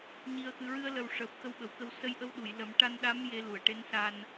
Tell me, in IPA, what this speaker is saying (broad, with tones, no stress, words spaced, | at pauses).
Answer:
ɲi˨˩ə̯xɨ˨˩ɹɨ˧ə̯ lə˨˩w ʂəː˨˩p̚xə˧wɓə˨˩˨wkə˧w sə˧˥j ʔə˧˥wɗu˨˩˨jlə˨˩˦m ʈa˧nɗa˧˥m je˧˥lu˨˩ə̯ ʈe˧˥nsa˧n